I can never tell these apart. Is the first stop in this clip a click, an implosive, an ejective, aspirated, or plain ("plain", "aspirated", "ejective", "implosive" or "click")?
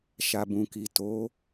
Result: plain